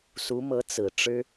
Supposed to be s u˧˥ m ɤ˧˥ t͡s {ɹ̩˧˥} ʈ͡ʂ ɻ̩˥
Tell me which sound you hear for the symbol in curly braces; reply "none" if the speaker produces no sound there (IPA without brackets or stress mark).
ɹ̩˨˩